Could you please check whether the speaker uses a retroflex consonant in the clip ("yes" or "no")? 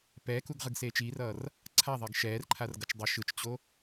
no